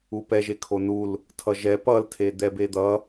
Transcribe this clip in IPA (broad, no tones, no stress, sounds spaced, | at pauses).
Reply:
u p ɛ ʒ e kʰ o n u l | tʰ ʌ ʒ ɛ p ʌ l tʰ e d̪ ɛ b e d̪ ʌ